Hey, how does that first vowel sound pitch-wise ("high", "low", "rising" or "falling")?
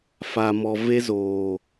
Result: low